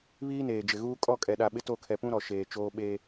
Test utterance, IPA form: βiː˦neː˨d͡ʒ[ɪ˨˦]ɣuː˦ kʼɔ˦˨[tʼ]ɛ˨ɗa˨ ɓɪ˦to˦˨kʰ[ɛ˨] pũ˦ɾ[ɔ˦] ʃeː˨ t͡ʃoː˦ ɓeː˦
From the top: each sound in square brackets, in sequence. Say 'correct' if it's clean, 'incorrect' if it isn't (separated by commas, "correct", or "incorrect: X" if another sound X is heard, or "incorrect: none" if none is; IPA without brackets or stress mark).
incorrect: ɪ˨, incorrect: kʼ, correct, incorrect: ɔ˨